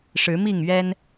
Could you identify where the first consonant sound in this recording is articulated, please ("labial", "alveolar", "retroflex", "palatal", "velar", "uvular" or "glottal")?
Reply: retroflex